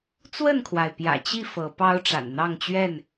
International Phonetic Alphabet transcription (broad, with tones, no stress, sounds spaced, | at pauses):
t͡s w ə˥˨ n kʰ w a˩ ɪ̯ p j ä̰˨˩ t͡ɕ i˥˨ f ɤ˨˦ p ɑ˦ ʊ̯ ʈ͡ʂ a̰˨˩ n n̪ ɑ˥˨ ŋ t͡ɕ ɥ ɛ˥˨ n